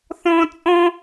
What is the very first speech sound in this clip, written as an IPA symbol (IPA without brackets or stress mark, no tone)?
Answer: θ